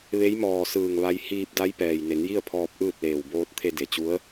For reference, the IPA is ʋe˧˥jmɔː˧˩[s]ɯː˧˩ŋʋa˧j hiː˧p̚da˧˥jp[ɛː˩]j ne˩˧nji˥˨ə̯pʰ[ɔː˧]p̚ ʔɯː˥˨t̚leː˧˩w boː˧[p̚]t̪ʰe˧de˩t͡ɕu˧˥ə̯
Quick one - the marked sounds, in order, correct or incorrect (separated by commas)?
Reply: correct, correct, correct, incorrect